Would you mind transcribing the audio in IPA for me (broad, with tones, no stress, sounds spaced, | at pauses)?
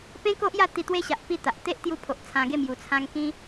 p ẽ˦ k o˦ ʔ j a˥˧ t̪ i˧ t̪ w e˦ ɕ a˨ ʔ p i˥˧ t̪ a˨ ʔ t̪ e˦ ʔ t̪ j u˧ pʰ o˨ ʔ t͡sʰ ã˧ ɡ e˥˧ m j u˨˩ t͡sʰ ã˧ ŋ k ĩ˧